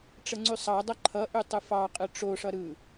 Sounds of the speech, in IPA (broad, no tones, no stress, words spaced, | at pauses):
ʈ͡ʂəŋ͡ǀʉsˤɑdˤʌ ǃʰʌʔʉ tˤɯfɑqʼɯ ʈ͡ʂoʂʌ ɾɯ